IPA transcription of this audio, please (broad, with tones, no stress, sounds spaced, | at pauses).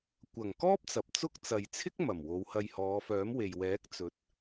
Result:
kʷ ɐ˨˩ ŋ k ɔː˥ p̚ t͡s ɐ˨ p̚ t͡s ʊ˥ k̚ t͡s ɐ˨ j t͡sʰ ɪ˥ k̚ m ɐ˨˩ m w o˨˧ w h ɐ˧ j h ɔː˨˧ f œː˨˥ m w e˨ j w ɛː˨˥ k̚ t͡s ɵ˨˥ t̚